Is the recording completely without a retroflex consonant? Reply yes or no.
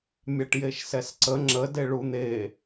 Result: no